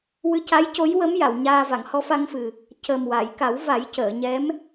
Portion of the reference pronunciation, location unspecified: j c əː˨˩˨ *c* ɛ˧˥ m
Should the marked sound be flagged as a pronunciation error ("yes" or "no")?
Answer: yes